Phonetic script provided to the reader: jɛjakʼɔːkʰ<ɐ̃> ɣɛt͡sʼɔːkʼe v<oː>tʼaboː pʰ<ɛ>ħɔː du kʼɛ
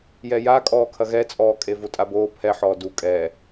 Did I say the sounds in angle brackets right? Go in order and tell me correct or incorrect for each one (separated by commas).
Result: incorrect, incorrect, correct